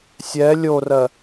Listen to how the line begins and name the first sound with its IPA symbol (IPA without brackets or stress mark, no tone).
sʲ